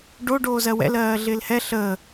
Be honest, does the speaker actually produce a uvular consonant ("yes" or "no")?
no